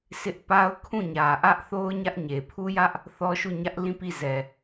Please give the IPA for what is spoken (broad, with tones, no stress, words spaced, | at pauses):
sʰɪ˦ʔ pa˦ʊ̯ kʰũ˦˨ɲä˨ʔä˦ʔθo˦ʊ̯ ɲä˦ʔɲe˨ pʰu˦jä˦ʔ | θɔ˦ʃu˦˨ɲä˦ʔ lĩ˦˨ pi˦˨zɛ˨